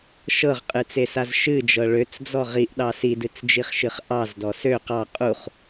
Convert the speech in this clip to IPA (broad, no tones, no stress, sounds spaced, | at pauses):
ʃ ɤ ʁ qʼ ɨ t͡s e s a z ʃ ɨ d͡ʒ ɤ ɭ ø t͡s d͡z ɔ ʁ i ʔ ɗ ɑ s i d ɨ t͡s d͡ʒ i χ ʃ ɨ χ ʔ ɑ z d ɔ s ø q ɑ qʼ u χ